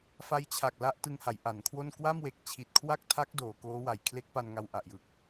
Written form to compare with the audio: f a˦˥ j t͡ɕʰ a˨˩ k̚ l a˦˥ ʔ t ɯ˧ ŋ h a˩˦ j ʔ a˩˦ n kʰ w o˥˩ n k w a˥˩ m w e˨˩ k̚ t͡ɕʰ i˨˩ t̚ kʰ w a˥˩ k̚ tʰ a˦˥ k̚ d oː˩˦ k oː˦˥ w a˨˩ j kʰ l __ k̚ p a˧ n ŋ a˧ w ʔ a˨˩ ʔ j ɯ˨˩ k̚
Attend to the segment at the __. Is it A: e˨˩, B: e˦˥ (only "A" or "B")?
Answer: B